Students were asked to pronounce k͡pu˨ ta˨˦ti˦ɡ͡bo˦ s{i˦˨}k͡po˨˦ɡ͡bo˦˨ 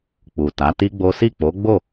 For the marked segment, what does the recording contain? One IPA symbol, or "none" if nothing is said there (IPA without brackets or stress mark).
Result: i˦˨